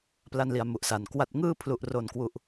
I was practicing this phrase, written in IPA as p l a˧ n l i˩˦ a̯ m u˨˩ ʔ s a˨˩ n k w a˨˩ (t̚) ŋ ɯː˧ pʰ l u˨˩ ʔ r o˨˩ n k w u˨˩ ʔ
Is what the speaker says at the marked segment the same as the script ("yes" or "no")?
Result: yes